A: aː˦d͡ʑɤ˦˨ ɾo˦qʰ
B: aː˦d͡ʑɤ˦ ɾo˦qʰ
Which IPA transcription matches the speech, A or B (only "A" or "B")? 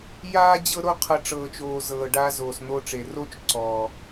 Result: B